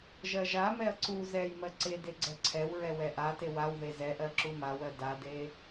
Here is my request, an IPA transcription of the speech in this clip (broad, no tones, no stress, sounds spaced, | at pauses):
ʒ ɜ ʒ a m ɛ ɐ̯ ǀ u z ɛ j m ɜ ǀ e d e ɡ͡ǀ ɛ ǀʰ ɛ w ɹ ɛ w ɛ ʔ a t e w a w ð e z ɛ ʔ ɜ ǁ u m a w ɜ d a d e